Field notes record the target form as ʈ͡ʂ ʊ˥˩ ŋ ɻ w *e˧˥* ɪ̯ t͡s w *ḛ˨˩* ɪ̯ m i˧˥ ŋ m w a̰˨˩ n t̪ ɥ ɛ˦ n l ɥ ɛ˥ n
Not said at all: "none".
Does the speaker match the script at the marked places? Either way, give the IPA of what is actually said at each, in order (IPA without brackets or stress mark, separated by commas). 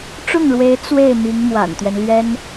e˧˥, e˥˩